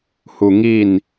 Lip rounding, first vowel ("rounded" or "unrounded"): rounded